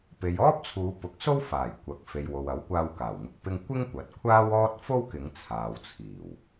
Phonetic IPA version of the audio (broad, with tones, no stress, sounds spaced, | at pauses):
p e˨ j ɔː˥ p̚ t͡sʰ uː˨˧ p ʊ˨˥ k̚ s o˥ w f aː˨˩ j kʷ ɐ˨ k̚ f e˨ j w o˨ w ɐ˨˥ w kʷ aː˧ w k aː˨˩ w ŋ ʊ˧ k̚ p ɪ˥ ŋ kʷ ɪ˥ ŋ kʷ ɐ˨˥ t̚ kʷʰ aː˥ w ɔː˥ t̚ f o˥ w k ɪ˨˧ ŋ t͡sʰ aː˨ w t͡sʰ iː˨˩ w